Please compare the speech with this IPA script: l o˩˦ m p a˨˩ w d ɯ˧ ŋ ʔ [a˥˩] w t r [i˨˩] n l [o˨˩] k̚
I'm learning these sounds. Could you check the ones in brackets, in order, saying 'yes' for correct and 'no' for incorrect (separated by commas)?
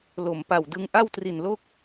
yes, yes, no